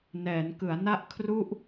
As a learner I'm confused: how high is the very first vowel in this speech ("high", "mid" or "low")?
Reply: mid